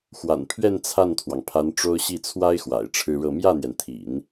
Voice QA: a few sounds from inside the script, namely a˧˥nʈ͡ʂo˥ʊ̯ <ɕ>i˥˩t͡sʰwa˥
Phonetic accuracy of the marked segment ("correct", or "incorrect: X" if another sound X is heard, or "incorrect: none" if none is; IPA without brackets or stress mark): correct